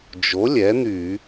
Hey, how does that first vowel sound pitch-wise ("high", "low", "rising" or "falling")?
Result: rising